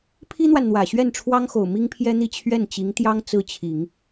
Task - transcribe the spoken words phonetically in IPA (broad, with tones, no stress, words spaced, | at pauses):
pʰi˥n̪wa˨nn̪wä˨˩ ɕɥɛ˥˩nʈ͡ʂʰwɑ˥ŋxo˨˩ʊ̯ mi˥ŋpʰjɛ˥n̪i˥˧ t͡ɕʰɥɛ˥˩nt͡ɕi˧˥ŋt̪jɑ˥ŋ t͡sɹ̩˥˩t͡ɕʰi˨˩˦ŋ